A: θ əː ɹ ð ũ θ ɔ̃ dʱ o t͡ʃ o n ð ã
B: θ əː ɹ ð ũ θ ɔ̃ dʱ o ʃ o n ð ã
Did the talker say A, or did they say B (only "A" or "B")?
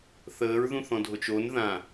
A